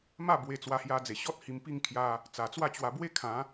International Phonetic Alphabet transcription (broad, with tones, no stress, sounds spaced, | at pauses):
m a˥˧ b w e˧ t͡s w a˧ h j a˧ d͡z e˨˩ ɕ ɔ˦ t̚ h i˧ m p i˥˧ ŋ kʰ j a˧ | t͡s a˨˩ t͡s w a˥˧ t͡ɕ w a˧ b w e˦ kʰ ã˨˦